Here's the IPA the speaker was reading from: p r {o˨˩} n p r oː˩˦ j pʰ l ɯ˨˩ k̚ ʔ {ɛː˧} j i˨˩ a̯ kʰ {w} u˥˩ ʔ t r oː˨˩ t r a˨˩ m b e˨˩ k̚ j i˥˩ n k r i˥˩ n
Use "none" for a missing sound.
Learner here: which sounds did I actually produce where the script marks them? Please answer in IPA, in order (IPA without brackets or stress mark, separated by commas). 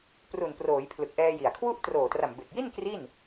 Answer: u˨˩, ɛː˧, w